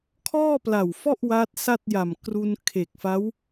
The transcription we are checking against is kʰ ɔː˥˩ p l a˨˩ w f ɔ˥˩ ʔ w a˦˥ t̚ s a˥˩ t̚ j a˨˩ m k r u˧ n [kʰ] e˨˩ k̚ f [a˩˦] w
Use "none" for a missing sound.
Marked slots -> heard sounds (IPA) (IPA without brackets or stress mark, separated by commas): kʰ, a˦˥